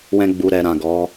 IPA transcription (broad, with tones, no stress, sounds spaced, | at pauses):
w ɛ̃˧ ɡ͡b u˨ ɾ ɛ˨ ɾ ã˨ ɡ ɔ˨˦